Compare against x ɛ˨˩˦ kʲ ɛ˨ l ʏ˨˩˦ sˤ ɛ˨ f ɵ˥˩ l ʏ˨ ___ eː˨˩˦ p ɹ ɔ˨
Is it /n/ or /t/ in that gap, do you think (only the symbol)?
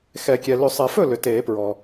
t